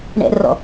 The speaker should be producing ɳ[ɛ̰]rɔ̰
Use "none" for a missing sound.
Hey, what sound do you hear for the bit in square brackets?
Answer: ɛ̰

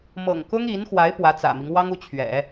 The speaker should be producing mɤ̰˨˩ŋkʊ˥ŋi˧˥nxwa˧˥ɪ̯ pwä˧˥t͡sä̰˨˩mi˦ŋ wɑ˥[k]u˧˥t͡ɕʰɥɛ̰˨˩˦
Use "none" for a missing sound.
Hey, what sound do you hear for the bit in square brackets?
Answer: ŋ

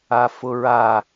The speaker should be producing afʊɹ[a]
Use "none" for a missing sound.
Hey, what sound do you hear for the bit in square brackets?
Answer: a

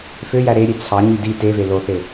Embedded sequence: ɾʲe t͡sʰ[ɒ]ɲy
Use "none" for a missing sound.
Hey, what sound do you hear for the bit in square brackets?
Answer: ɑ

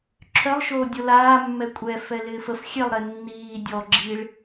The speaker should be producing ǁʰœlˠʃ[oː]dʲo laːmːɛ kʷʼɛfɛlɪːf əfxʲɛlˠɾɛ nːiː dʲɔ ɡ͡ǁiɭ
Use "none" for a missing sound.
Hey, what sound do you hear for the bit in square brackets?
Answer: oː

